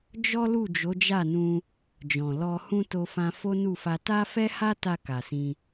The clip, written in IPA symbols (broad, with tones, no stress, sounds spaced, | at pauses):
d͡ʒ ɔ˦ l u˦˨ d͡ʒ o˨˦ d͡ʒ a˦˨ n ũ˧ | d͡ʒ ɔ̃˨ l ɔ˧ h ũ˦ t o˦ f ã˦ f o˦ n u˦˨ f a˧ t a˦ f ɛ˦ h a˦ t a˧ k a˨ s ĩ˧